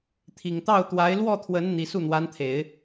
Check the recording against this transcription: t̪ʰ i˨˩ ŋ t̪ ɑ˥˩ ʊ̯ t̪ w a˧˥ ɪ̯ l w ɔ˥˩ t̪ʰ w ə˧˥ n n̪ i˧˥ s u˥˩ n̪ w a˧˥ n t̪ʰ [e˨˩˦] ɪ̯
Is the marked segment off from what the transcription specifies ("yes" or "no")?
no